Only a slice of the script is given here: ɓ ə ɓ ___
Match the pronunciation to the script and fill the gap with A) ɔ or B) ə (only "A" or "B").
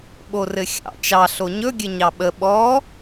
A